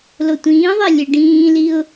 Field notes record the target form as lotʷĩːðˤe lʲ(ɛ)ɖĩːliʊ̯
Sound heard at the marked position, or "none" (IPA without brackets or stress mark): ɛ